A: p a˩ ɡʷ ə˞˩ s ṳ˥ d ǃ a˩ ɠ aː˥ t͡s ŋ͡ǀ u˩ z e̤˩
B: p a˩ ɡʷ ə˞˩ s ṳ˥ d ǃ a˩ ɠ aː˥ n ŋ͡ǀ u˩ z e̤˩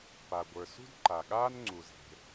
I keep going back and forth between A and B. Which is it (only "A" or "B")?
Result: B